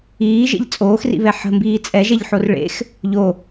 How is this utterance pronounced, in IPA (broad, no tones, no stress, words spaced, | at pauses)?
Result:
iːʒḛʎ t͡sʼoːxrḭβɛ ħə̤mbiː t͡sʼɛʒɛʎħor ɭḛx | ʎo